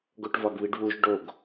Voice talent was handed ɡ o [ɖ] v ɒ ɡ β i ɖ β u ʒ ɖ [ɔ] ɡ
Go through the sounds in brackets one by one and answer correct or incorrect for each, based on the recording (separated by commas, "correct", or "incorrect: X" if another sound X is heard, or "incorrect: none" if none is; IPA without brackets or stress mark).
incorrect: ʈ, incorrect: o